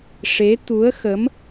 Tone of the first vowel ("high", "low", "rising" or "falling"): rising